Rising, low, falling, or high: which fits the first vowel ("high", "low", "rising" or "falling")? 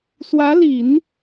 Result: rising